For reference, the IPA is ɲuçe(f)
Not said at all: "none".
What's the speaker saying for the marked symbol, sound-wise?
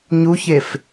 f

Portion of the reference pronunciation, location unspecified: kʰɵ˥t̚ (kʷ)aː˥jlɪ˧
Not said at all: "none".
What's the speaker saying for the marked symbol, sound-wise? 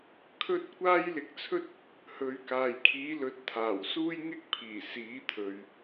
kʷ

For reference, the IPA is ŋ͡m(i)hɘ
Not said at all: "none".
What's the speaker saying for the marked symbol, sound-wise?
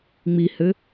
i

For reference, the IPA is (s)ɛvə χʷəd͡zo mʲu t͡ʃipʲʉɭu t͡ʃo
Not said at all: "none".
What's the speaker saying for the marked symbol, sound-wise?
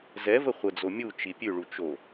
z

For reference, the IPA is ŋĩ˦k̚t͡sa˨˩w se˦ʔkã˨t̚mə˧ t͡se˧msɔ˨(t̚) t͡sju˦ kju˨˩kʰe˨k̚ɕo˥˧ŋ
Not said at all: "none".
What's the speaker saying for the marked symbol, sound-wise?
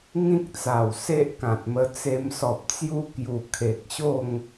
p̚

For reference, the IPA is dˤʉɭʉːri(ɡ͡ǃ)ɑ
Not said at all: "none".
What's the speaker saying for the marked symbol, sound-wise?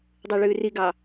ɡ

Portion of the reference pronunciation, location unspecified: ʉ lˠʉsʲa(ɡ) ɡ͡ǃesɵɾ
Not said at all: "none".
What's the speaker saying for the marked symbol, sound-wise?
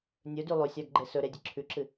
ɡ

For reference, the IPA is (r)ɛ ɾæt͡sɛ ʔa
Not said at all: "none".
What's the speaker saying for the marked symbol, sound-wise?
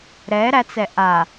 ɾ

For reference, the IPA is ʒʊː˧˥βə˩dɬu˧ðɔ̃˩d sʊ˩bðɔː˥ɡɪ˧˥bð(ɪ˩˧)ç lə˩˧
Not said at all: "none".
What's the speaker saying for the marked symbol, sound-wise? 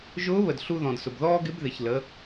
ɪ˩˧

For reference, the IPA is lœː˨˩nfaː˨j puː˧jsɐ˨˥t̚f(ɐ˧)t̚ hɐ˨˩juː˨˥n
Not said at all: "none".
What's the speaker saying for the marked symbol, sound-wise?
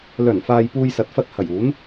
ɐ˧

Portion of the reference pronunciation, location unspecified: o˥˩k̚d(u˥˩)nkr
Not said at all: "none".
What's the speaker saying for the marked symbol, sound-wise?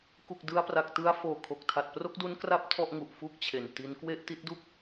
u˦˥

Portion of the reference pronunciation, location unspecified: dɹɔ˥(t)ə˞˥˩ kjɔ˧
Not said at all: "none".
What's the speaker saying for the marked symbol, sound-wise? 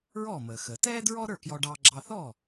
ɾ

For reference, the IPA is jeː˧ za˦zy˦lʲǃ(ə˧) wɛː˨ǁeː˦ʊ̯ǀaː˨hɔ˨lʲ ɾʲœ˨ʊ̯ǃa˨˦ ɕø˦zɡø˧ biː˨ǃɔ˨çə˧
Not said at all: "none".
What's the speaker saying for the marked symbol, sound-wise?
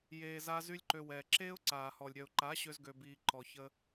ø˧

